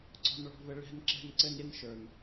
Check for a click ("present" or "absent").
present